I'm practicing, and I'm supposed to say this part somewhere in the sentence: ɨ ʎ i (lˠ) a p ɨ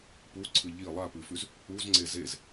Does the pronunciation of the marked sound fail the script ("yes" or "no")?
no